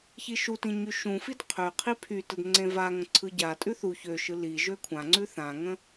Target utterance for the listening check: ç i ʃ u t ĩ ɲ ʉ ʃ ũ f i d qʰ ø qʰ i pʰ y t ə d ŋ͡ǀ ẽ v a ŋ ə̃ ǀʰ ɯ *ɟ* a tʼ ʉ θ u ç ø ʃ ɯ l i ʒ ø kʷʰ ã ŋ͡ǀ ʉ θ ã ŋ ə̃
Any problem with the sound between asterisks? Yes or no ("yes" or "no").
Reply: no